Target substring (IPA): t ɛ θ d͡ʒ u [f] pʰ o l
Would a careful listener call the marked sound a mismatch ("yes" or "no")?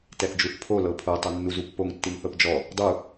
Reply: yes